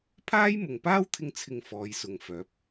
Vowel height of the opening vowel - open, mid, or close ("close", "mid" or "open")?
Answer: open